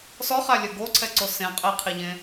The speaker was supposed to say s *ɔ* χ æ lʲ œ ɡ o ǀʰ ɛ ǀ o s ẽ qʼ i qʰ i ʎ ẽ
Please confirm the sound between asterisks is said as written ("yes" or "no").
yes